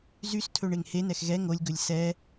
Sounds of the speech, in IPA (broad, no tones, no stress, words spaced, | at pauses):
zystʰɵ ɳeŋhenɛx ɣɛ ŋolʲɡɵlʲ sɛ